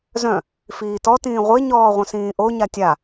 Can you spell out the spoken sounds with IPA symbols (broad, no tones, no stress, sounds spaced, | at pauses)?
z œ̃ | f iː t ɔ t ĩː ʁʷ e ɲ ɔː ʁʷ œ̃ s ĩː ʔ o ɲ a tʲ a